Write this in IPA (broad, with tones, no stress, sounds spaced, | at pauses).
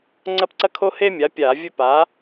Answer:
ŋ͡ǀ ɐ˦ p ǀ ɐ˦ kʰ o˦ h e˦ mʲ a˩˥ pʲ aː˧˩˧ vʲ ɵ˦ p a˩˥